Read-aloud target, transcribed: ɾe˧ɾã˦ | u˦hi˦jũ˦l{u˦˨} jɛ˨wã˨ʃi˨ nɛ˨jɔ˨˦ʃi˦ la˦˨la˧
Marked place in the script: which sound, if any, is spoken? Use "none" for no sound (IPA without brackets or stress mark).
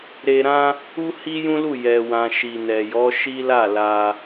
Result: u˦˨